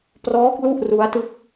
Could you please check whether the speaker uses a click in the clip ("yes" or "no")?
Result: no